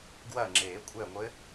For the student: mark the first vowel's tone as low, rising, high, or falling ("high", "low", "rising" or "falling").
falling